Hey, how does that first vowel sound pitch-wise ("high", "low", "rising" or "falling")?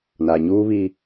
low